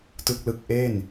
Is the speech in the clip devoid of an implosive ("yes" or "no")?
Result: yes